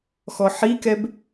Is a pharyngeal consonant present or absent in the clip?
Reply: present